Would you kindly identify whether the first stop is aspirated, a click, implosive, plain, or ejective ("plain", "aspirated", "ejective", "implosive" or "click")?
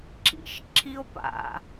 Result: click